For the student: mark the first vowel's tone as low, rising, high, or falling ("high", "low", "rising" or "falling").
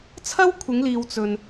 high